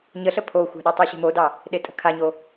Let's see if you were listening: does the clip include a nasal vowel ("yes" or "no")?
no